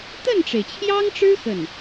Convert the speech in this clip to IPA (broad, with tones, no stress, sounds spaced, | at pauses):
t̪ ə˥˩ n ʈ͡ʂ e˩ ɪ̯ t͡ɕʰ j ɑ˥ ŋ ʈ͡ʂ ɻ̩˥ x ə˥˩ n